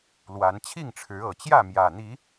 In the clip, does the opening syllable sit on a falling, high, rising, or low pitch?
rising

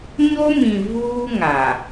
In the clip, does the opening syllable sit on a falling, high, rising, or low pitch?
high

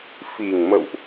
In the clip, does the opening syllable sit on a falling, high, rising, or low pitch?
low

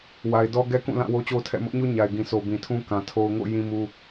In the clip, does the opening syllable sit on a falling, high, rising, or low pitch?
low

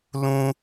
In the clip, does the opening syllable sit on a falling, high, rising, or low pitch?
high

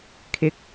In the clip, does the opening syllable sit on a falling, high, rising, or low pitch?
rising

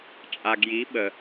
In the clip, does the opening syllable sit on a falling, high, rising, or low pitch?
low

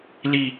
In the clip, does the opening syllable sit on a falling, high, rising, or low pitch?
falling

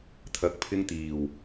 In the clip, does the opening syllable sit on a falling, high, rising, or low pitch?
rising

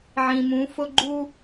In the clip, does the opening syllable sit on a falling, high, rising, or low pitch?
low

